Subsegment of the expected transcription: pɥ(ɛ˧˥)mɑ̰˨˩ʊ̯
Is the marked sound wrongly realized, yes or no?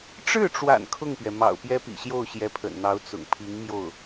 yes